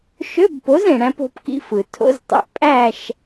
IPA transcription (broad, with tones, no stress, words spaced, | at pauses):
ʃø˧˥˧bpo˩˥z ẽ˩ɽæ̃˧p o̤˧pkḭ˧fɯ˩ tʰo̰˧˥˧ztˤḭ˩˥ʔpʼæ˥˨ʃ